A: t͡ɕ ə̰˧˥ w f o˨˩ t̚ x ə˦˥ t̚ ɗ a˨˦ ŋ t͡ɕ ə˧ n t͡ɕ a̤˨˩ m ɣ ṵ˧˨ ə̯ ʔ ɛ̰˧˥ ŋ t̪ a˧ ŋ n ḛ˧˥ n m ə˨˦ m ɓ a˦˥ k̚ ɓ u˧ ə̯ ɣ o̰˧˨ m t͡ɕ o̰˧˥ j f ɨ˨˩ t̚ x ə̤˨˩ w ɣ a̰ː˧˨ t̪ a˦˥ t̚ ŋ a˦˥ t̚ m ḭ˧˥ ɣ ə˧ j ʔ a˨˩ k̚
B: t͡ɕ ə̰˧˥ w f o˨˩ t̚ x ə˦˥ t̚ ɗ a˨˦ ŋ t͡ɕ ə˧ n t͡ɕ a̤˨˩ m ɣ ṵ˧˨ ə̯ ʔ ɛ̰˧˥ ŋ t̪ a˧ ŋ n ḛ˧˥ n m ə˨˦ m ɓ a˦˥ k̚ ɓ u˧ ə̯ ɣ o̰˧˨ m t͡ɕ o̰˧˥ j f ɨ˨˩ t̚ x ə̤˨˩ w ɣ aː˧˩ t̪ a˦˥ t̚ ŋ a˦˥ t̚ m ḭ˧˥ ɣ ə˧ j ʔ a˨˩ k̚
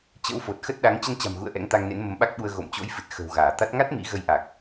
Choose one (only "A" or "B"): B